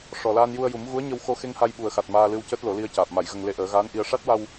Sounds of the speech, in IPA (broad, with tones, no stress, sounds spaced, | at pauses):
ʂ ɔ˨˩ l aː˧ n j u˧ ə̯ j u˨˩˦ m ɣ u˧˥ ə̯ ɲ ə˧ w x o˧ x e˧ ŋ h a˧ j ɓ u˨˩ ə̯ x a˨˩ t̚ m aː˧ l ɨ˧ w c əː˦˥ t̚ l o˨˩˦ l i˧ ə̯ c aː˨˩ p̚ m a˨˩˨ j ɣ ə˨˩ ŋ l e˧ ʔ əː˨˩˦ ɣ aː˧˥ n ʔ i˧ ə̯ ʂ a˦˥ t̚ w a˧ w